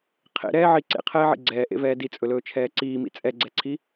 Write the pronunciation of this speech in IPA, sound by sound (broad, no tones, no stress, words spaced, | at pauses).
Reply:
qʰḛɾɛːʕi ǀḛqʰɛːʕḭ ɡ͡ǀɛːʔḛvɛː dit͡sʼɵlɵːt͡ʃʰɛː ǀiːmḭ t͡sʼɛɡ͡ǀɛǀʰi